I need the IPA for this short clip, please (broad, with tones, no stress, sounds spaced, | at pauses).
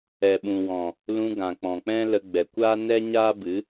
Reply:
ɛ˨ ɓ ũ˨ w ɔ̃˨ | l ũ˧ ɡ ã˨ k͡p ɔ̃˨ k͡p ɛ̃˦ l ə˧ ɡ͡b ɛ˨ kʷ aː˦ n ɛ˦ ɲ aː˦ b ɨ˨˦